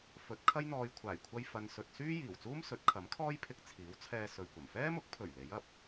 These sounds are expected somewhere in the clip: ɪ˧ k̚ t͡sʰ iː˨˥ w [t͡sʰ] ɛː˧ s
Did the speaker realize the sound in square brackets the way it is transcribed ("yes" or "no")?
yes